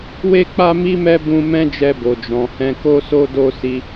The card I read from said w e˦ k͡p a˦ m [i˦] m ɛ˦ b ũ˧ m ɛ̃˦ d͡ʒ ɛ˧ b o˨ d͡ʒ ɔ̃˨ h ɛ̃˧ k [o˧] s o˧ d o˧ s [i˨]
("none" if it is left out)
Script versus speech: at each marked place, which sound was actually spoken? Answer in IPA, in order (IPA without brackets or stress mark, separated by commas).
i˦, o˧, i˧